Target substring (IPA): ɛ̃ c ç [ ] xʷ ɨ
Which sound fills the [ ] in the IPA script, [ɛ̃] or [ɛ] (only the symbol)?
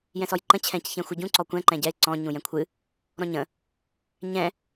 ɛ̃